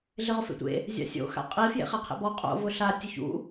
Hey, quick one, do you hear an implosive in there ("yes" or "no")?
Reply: no